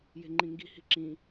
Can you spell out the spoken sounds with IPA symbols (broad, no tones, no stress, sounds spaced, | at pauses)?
j e̤ ŋ͡ǃ ĩ ŋ ɡ i̤ h i̤ ǁ ĩ